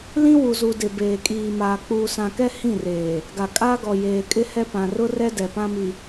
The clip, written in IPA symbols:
lĩ˦wu˨zu˨ dɪ˨ beː˨kʼiː˨ maː˨ k͡puː˨sã˨kɛ˦ hĩ˦˨reː˨ | ɡa˨kʼaː˦ɡɔ˨ jeː˨kʼɪ˦hɛ˦ pã˨rʊ˦rɛ˦ dɛ˨pã˦mi˨

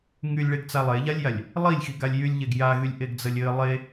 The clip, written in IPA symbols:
ŋylʲɭeɡt͡sa lˠeʎalʲjalʲ | lˠilʲxiɡalʲ jylʲʎeɡ jaɣylʲʔeɡd͡zəlʲ ɘ lˠe

